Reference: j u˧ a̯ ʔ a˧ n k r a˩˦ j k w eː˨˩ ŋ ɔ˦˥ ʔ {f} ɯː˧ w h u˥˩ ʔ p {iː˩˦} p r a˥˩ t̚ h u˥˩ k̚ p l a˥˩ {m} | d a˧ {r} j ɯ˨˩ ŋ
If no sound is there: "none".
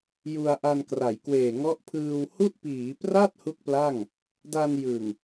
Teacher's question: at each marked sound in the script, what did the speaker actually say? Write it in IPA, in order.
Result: pʰ, iː˩˦, ŋ, n

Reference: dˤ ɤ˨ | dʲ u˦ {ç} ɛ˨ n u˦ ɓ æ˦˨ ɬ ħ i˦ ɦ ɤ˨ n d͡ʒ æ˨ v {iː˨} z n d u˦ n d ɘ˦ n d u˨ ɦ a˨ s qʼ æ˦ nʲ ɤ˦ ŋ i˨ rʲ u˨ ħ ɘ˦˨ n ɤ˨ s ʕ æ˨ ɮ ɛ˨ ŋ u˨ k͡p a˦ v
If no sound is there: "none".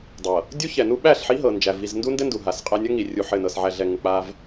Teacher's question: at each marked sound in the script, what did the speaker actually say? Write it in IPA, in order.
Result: ç, i˨

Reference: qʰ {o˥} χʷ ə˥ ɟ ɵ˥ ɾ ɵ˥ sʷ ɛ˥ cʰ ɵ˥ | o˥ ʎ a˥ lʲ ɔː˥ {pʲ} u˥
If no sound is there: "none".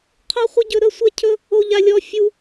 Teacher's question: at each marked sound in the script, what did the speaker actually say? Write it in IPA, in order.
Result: o˥, fʲ

